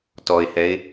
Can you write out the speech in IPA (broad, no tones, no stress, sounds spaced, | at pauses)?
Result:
t ɔ ɪ̯ h ɛ ɪ̯